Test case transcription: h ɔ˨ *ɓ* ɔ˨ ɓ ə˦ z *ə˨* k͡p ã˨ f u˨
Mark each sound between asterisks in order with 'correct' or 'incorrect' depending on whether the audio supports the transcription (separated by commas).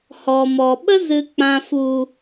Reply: incorrect, incorrect